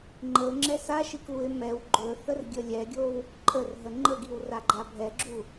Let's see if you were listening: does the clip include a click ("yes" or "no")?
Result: yes